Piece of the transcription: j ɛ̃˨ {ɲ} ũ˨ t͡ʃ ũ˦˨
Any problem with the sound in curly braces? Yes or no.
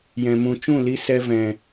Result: yes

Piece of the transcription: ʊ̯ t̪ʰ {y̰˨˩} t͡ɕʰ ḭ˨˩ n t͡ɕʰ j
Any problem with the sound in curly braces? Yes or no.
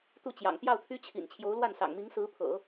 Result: yes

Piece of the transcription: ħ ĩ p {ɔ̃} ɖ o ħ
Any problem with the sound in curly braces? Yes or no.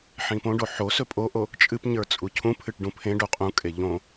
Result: yes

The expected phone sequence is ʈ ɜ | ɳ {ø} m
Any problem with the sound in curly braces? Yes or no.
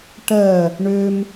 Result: no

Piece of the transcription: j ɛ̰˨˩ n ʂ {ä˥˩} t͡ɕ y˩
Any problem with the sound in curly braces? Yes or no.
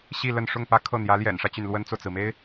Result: yes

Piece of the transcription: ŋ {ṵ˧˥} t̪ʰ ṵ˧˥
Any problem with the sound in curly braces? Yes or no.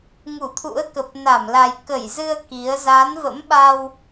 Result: yes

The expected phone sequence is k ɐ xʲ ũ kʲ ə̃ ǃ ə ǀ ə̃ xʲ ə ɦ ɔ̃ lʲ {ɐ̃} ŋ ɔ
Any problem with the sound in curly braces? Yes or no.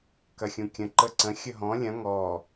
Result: no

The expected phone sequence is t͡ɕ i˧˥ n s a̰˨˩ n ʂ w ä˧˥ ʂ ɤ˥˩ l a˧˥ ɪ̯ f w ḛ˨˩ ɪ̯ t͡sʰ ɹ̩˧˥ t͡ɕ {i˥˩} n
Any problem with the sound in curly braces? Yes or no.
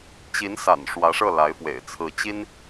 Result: yes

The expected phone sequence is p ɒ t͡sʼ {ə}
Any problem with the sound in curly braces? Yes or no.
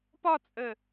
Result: no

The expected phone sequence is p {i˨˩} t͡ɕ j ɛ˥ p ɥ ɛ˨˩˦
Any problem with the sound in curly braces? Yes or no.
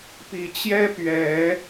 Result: no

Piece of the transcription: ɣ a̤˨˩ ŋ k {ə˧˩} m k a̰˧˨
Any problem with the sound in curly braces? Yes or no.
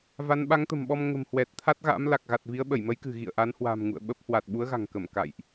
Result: no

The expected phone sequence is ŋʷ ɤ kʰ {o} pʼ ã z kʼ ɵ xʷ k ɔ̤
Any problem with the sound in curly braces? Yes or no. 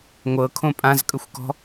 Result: yes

